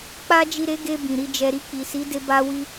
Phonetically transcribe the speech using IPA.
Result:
k͡p a˧ d͡ʒ i˨ ɾ e˨˦ ɡ e˧ b ĩ˨ ɾ i˧ d͡ʒ ɛ˧ ɾ i˧ k͡p i˨ s i˨˦ d e˧ b a˦ w i˦

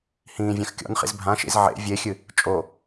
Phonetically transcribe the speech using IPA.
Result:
h ĩː vʲ ã x kʲ ɔ̰ n χ ḭ z bʱ ã ʃ ḭ z ʕ ḛ vʲ e xʲ ɨ | t͡ʃʼ o

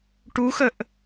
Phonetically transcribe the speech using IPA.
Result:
ʈ u x ə ʔ

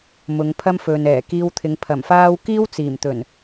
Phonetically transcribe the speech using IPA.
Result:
m ʊ˨˧ ŋ pʰ ɐ˥ m f ɵ˨ n ɛː˨˩ k iː˧ w t̪ʰ ɪ˨˧ ŋ pʰ ɐ˨˩ m f aː˥ w k iː˥ w t͡s iː˨˩ m t̪ ɵ˨˩ n

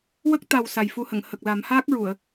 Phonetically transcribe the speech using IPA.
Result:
w ə˦˥ k̚ t̪ a˨˩ w s a˨˩ j f u˧ h ə˨˩˨ ŋ h ə˨˩ k̚ l a˨˩˦ m h aː˦˥ k̚ ɹ u˨˩˨ ə̯

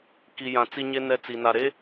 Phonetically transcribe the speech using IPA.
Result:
k i˨ j ã˨ t͡s i˦ ɲ e˦ n ɛ˦ t͡s i˨ n a˨ ɾ e˦

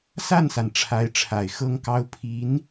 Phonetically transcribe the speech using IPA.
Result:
s a˥˩ n s a˩ n ʈ͡ʂʰ a˧˥ ɪ̯ ʈ͡ʂʰ a˨˩ ɪ̯ x ɤ˥ ŋ k ɑ˥ ʊ̯ pʰ i˧˥ n

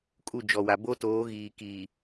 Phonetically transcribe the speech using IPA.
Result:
kʼ u˦˨ d͡ʒ ɔ˨ w a˨ b o˦ t oː˨˦ ɣ iː˨ k iː˨

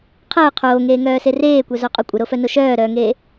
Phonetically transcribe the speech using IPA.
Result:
qʰ əː qʰ oː ŋ eː ŋ œː s e r eː kʷ œ z o qʼ o kʷʼ ə ɾ o f œ n o ʃ œː ɾ œː ŋ eː

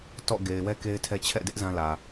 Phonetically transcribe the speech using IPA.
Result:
t ɔ̰˦˨ ɡ e˨ ɪ̯ w ɛ˦ k e˦ ɪ̯ tʰ ɛ˦ t͡ɕʰ ɛ̰˦˨ d ɪ˦ ʔ z ã˦ l ä˨

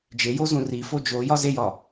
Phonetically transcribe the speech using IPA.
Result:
d͡ʒ e j o z ũ r i f o d͡ʒ o j ɒ z e j ɒ

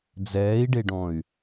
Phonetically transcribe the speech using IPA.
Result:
d͡z ɛː i̯ ɖ e ɖ ɔ̃ y̯

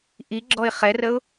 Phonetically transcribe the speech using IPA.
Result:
ʔ i ɡ͡ǁ ɔ ɪ̯ χ ɛ r ə ʊ̯

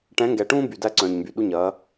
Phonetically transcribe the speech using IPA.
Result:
ʈ ɛ̃˨˦ ŋ ɡ ɛ˨ ʈ ũː˦ b y˨ d æ˦ ǀ œ̃ː˨ ɲ m b y˨ ɗ u˦ ɲ ɐː˨˦

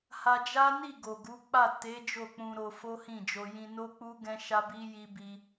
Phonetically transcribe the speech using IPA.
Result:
h a˧ d͡ʒ a˦ n i˦˨ ɡ o˨ ɡ u˨˦ k͡p a˦˨ t e˨˦ d͡ʒ o˦˨ k͡p ũ˧ ɾ o˧ f o˦ h ĩ˦˨ d͡ʒ o˧ j ĩ˧ n o˦ k͡p u˦ ɡ ɛ̃˦ ʃ a˦ b i˦ j i˦ b i˦

